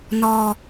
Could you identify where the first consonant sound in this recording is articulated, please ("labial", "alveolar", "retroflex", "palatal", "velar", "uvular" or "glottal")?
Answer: alveolar